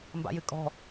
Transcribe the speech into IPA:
m b a̰ j ɨ kʼ ɔ̤

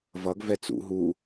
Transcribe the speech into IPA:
v ʌ ɡ v ɛ t͡s ṵ ɦ u

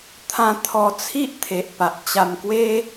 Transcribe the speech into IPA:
t̪ʰ ã˧ t̪ʰ ɔ˧ t͡sʰ i˦ ʔ t̪ʰ e˨ ʔ p a˨ ʔ t͡ɕ a˧ m k w e˦

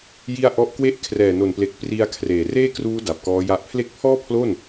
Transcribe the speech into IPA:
j i˧ a̯ ʔ ɔ˦˥ ʔ k w e˥˩ ʔ kʰ r ɛː˨˩ n o˨˩ n p l e˨˩ k̚ p r i˧ a̯ kʰ r eː˨˩ r eː˥˩ k r uː˦˥ d a˨˩ p̚ k ɔː˦˥ j a˦˥ ʔ pʰ l e˦˥ k̚ pʰ ɔː˥˩ pʰ l o˥˩ n

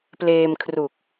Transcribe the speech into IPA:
p l eː˧ m kʰ r u˨˩ k̚

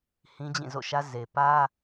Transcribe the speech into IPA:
h ĩ˦ d͡ʑ ĩ˦˨ z o̰˦˨ ʃ ä˦ z e˨ p ä˦

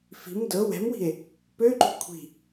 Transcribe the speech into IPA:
f i̤ m d ɤ w ɛ̤ m w i̤ e̯ | p ø ǃ ṳ kʷʰ i̤

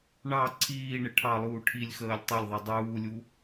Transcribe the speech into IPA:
ɳ ɑ ǀʰ iː ɳ ɪ ʈʰ ɑ lˠ uː ʈʰ i lʲ x əː lʲ tˤ ʌ lʲ ðˤ ɛ dˤ uː lʲ u

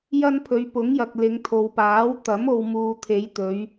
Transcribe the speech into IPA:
j ɐ˥ n pʰ ɵ˨˧ ɥ p ʊ˨˥ ŋ j ɐ˨ k̚ l ɪ˨˧ ŋ t̪ʰ o˨ w p aː˨˥ w t̪ ɐ˨˥ m o˨ w m uː˨ t̪ʰ e˨˧ j t̪ ɵ˨˧ ɥ

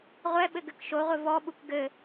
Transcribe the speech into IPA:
ʁʷ ɛ ɓ ɘ ɡ ɘ k ʃ o ʁʷ ɘ v ɔ ɓ u k ɡ ɘ

